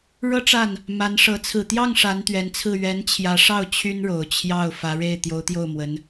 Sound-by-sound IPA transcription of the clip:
ɻ ɤ˥˧ ʈ͡ʂ a˥˩ n | m a˧˥ n ʂ ɤ˧˥ t͡sʰ ɹ̩˨˩ t̪ j ɑ˥˩ ŋ ʂ a˧˥ n t̪ ɥ ɛ˧˥ n t͡sʰ ɹ̩˥˩ ɥ ɛ˧˥ n t͡ɕʰ j ä˧˥ ʂ ɑ˥˩ ʊ̯ t͡ɕʰ y˥ n ɻ o˨˩ ʊ̯ t͡ɕʰ j ɑ˥˩ ʊ̯ f ä˧˥ ɻ e˥˩ ɪ̯ t̪ j o˧˥ ʊ̯ t̪ j o˥˩ ʊ̯ m w ə˧˥ n

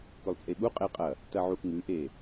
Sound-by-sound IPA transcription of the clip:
k ɵ lˠ t͡sʼ e ɓ u qʼ e qʼ ɐ | t ɐ ʕ u ʔ ŋ ʉ ʔ e

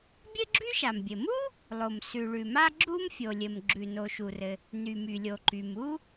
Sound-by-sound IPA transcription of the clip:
bʲ ɘ˥ ɡ͡ǁ y˥ ʃ a˩ m bʲ ɘ˩ m u˥ | lˠ o˩ m s ʉ˩ ɭ ʉ˩ m a˥ ɡ͡ǁ u˥ m fʲ o˩ lʲ ɘ˩ m ɡ͡ǁ ʉ˩ n o˩ ʃ u˩ r ɘ˩ | n y˩ m y˩ lʲ o˩ ǃ y˩ m u˥

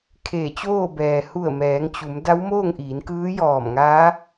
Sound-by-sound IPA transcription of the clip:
kʰ eː˧˩ t͡ɕ oː˥˨ b ɛː˩ h u˧˩ ə̯ m ɛː˩˧ ŋ t͡ɕ u˩˧ m d a˧˥ w m oː˥˨ ŋ ʔ iː˩˧ n k ɯː˧˥ j ɔː˧˩ m ŋ aː˧˥

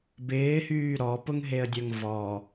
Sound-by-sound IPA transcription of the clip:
b ɪː h yː ɾ ɔ p ʊ ŋ ɦ e ə̯ dʲ œ ŋ v ɔ

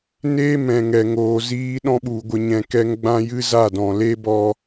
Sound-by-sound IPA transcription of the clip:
n eː˦ m ɛ̃˨ ŋ ɛ˨ ŋ oː˨ z iː˦ ɗ ɔ̃˦ ɓ u˨ ɡʷ ə˦ ɲ ɛ̃˧ k ɛ˦ ŋ ɡ͡b ã˧ j ɨ˦ z a˦˨ d ɔ̃˨ l e˦ b ɔ˧

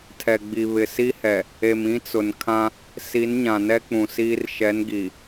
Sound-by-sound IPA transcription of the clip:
tʰ ɛ˨ ɡ͡b i˨ β ɪ˨ s i˦ h ɛ˨ | e˨ m ĩ˦ t͡s ʊ˨ n kʰ ã˦ | s i˨˦ n ɲ ã˨ n ɛ˦ k͡p ũ˨ s iː˦ r ʃ ɛ˨˦ n ɡ i˨

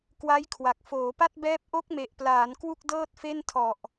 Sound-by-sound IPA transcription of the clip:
k w a˦˥ j kʰ w a˨˩ k̚ f oː˩˦ p a˥˩ t̚ b ɛː˦˥ p̚ ʔ o˦˥ k̚ m e˨˩ ʔ p l aː˩˦ n k w u˥˩ k̚ d ɤː˥˩ t̚ f e˥˩ n tʰ ɔ˨˩ ʔ

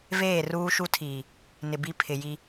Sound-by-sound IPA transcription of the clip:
v eː˦˨ r uː˦ ʃ u˦ tʰ iː˨ | n ɪ˨ b i˦ pʰ ɪ˨ j i˦

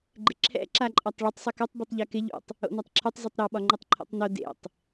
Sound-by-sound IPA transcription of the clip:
ɡ͡ǃ ɪ ǁʰ ɛ̰ ǁ a ǃʼ ɒ tˤ ɭ ɪ tˤ sˤ ɯ k o tˤ b ɯ tˤ ʎ ɛ k ɪ ʎ ṵ tˤ | o̰ n ɒ tˤ ǁʰ u tˤ z u tˤ ɾ ɔ ɓ ɒ ŋ͡ǃ ɯ tˤ ǃʰ o̰ tˤ n o d ḛ tˤ

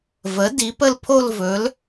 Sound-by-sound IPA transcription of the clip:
v ə˩˥ d i˩˥ p ə˥˨ l pʰ o˥˨ l v ɵ˩˥ l

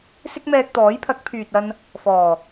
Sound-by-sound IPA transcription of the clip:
s ɪ˥ k̚ m ɛː˧ k̚ t̪ ɔː˨˥ j pʰ ɐ˨˥ k̚ pʰ yː˨ t̚ ɐ˧ n | f ɔː˨˩

